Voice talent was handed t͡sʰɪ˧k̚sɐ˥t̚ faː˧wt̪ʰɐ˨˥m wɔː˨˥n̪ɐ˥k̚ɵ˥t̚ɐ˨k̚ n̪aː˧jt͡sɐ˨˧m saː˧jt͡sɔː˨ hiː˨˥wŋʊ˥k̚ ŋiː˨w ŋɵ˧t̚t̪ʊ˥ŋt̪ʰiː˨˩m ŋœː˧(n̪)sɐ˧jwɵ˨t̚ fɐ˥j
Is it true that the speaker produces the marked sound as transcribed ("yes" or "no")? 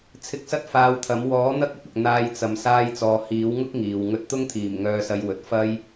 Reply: no